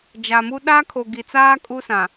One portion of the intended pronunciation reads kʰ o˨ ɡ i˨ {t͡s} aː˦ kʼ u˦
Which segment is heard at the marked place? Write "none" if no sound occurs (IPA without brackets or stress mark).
t͡s